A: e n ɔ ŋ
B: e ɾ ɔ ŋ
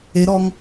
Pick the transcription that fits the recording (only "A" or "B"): B